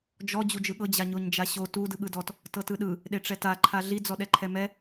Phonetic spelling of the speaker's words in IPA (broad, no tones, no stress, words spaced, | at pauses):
d͡ʒɔ d͡ʑud͡ʒɯɠɤ d͡ʑaɲoɲd͡ʒaɕo tu dɯɠɯdɔt | tɤtɯɗɯ | ɗeʈ͡ʂɛta ǃʰaɮi d͡zɔɗɛǃʰɛmɛ